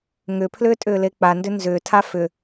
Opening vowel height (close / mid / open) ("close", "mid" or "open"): close